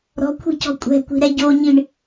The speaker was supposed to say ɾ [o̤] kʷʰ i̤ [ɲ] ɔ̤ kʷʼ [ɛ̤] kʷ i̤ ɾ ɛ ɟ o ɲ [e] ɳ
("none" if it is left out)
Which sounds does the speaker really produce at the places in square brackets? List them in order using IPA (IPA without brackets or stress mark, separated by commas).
ɔ̤, c, ɛ̤, i